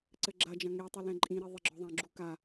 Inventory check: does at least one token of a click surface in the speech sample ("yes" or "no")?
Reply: yes